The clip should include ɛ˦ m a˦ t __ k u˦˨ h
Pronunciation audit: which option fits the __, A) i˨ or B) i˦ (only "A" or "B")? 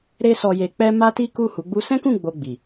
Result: B